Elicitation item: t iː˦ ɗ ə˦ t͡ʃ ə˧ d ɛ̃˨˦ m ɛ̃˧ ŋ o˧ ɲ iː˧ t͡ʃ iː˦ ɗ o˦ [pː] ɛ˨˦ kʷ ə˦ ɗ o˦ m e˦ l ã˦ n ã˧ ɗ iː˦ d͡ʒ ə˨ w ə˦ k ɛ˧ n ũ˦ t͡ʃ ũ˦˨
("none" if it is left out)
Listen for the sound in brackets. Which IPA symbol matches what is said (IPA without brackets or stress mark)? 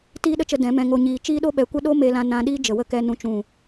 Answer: ɓ